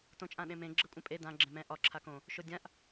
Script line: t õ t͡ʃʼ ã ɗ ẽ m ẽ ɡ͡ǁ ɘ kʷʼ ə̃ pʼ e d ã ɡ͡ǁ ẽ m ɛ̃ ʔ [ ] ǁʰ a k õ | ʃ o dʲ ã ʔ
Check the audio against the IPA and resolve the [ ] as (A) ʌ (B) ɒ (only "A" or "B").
B